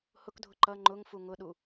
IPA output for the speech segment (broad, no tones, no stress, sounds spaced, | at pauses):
h ʊ k dʱ ʊ ǃ ʌ ŋ͡ǃ ʊ ŋ f u ŋ ʊ ɗ u